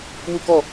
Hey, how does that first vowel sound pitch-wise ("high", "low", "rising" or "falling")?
falling